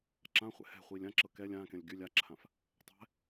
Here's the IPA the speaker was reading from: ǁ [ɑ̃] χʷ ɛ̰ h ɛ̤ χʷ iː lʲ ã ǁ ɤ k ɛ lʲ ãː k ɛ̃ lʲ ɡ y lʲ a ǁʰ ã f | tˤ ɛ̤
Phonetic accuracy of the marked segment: incorrect: ã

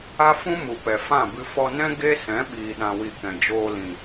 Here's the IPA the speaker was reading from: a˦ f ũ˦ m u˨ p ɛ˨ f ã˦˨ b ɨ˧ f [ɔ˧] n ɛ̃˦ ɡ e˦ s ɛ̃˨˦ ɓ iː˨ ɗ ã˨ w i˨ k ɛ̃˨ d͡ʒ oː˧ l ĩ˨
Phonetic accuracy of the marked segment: correct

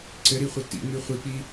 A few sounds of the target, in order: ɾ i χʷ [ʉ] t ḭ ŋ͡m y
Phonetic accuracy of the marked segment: incorrect: ɘ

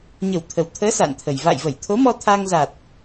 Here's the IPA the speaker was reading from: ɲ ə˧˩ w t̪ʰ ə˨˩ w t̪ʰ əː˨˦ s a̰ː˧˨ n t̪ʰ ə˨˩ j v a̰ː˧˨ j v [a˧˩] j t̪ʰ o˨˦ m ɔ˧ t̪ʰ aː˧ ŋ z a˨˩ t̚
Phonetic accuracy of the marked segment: incorrect: ə˧˩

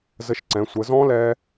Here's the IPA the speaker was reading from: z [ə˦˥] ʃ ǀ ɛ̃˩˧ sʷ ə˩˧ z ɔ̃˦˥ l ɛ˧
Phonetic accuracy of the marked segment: incorrect: ə˧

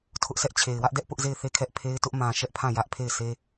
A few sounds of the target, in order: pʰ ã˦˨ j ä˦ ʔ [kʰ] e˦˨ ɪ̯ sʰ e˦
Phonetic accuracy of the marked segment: incorrect: pʰ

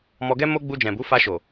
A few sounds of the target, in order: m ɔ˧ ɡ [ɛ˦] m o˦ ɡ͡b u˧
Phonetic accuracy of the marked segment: correct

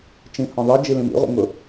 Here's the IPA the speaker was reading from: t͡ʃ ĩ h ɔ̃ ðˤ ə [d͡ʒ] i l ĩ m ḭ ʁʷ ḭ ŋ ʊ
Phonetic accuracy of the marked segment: correct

